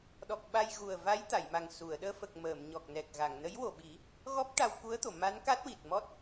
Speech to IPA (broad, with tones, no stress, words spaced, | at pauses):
ɗɔ˨˩k̚ ɓa˧jɣu˨˩ə̯va˧˥j t̪a˨˩˨jma˨˩ŋ su˨˩˨ə̯ ɗəː˧fə˨˩k̚ məː˨˩˨mɲɔ˨˩k̚nɛ˨˩k̚ɣa˨˩˨ŋ nə˧˥jwo˨˩ɓi˨˩˦ | ɣɔ˦˥p̚ʈa˧wku˧˥ə̯t̪o˨˩˨ ma˧˥nka˦˥t̚ wi˨˩t̚mɔ˦˥t̚